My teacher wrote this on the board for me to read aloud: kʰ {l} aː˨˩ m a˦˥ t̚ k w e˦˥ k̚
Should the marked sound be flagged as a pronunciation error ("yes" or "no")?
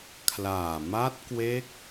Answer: no